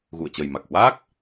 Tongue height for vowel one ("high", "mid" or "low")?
high